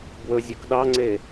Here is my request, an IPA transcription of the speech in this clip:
b w ɵ zʲ ɵ k ɗ ɑ ŋ͡ǀ e

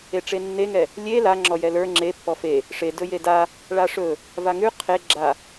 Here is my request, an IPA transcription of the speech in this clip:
e ʈ͡ʂ e nː e ŋ ɛ | lʲ e l a ŋ͡ǁ ɔ j ɛ l ə˞ ŋ͡ǁ e pː ɔ f e | ʂ e d ɵ j e d a | ɭ a ʂ ɵ | v a ŋ ʉ qʰ e ɡ͡ǁ a

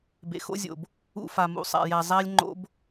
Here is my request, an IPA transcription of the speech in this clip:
b ḛ˨ x o̰˦ zʲ o̰˨ b | ṵ˧ f a˨ m ṵ˨ sˤ a̰˨ j æ˨ zˤ æ˦ lʲ ŋ͡ǃ o̰˦ b

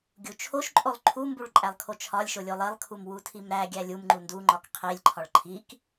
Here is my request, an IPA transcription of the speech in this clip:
ɡʲ u t͡ʃʰ o ʃ ǃʼ o lˠ ǃʰ u m b u ɭ ǃʼ æ lˠ kʰ o t͡ʃʰ ɒ lʲ ʃ o lʲ o lˠ e lˠ kʰ u m w u tʰ i m ɾ æ ɡʲ æ lʲ u m ŋ͡ǃ u n d u ŋ͡ǃ ɒ k qʰ i lʲ ǃʰ ɒ ɭ ǃʰ i k

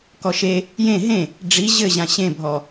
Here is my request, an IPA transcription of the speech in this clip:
k ɔ ʃ e | j ẽ ɦ ẽ | ɖ͡ʐ i ʑ ɘ ʑ ã ɕ ẽ bʱ ɔ

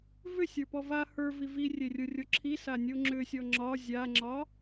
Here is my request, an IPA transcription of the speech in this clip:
v ʏ sʲ ə˞ p ɔ v a h ə˞ v i v i rʲ e rʲ ə˞ rʲ o ǁʰ i s a nʲ o ŋ͡ǁ ʏ sʲ ɔ ŋ͡ǁ ɒ zʲ a ŋ͡ǁ ɒ

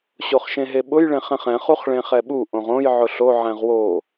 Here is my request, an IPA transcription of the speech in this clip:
ɕ o χ ʃ ẽ ɦ e ɓ ʊ j ɭ ẽ χ ɛ̃ χ ɛ̃ χ u χ ɭ ẽ χ ɛ ɓ u ʔ õ ʁ õ j ʕ ʊ ɬ o ʕ ɛ̃ ʁ w o

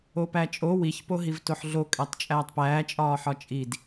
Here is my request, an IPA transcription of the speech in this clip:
o p æ t͡ʃʼ o w i ç p o ɦ i v t o ħ ɮ o kʼ æ tˤ t͡ʃʼ æː tˤ p æː t͡ʃʼ ɒː ħ ɒ t͡ʃʼ i d

